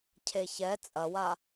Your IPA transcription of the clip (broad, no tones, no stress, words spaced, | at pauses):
cʰeçɛ t͡sʼɐwa